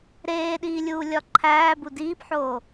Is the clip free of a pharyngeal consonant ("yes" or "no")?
no